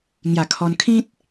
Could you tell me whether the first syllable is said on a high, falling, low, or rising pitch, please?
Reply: low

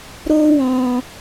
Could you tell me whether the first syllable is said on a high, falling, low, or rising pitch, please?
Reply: high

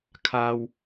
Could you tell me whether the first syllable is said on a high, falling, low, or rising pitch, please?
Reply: low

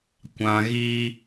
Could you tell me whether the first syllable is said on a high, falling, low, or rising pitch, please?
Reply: low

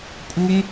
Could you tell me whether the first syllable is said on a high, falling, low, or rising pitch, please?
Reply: high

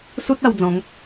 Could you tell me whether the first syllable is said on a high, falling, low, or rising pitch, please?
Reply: high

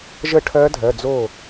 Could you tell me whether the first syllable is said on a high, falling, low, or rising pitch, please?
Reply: falling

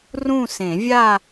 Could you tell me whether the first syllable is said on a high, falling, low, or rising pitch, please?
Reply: falling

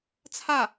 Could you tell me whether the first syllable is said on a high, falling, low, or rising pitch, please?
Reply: falling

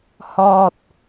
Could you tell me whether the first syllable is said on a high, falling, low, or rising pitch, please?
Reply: low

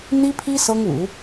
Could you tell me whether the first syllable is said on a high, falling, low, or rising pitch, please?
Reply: high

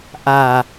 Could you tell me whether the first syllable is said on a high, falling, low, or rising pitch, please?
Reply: low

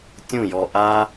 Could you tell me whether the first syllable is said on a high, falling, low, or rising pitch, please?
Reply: falling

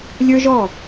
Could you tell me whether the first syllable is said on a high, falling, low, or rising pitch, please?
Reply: high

